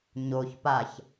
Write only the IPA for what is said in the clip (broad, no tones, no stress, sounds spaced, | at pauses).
ɲ o ç p a ç